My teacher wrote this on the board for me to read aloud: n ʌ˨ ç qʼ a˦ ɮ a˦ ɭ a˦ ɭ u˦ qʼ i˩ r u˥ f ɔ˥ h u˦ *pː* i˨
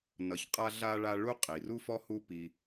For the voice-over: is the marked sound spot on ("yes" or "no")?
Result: no